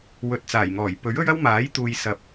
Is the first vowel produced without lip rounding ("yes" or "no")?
no